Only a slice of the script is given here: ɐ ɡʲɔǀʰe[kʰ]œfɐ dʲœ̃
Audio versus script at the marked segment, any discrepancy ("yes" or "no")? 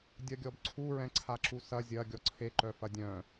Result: yes